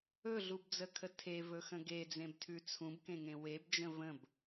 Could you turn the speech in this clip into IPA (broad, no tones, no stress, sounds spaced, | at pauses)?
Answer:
ɵ ɮ u b d͡z ə kʰ ə tʰ e v ɵ x ə̃ ɡ e d͡z ẽ b tʰ ʉ t͡sʰ ũ b k ẽ ŋ ẽ w e b d͡ʒ ə̃ v ə̃ b